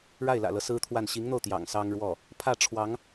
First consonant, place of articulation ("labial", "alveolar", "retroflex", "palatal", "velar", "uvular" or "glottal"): retroflex